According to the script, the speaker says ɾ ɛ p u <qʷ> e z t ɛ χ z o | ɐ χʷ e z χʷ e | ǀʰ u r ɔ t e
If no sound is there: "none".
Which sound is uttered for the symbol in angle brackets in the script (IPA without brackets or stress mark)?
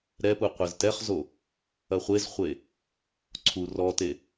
qʷ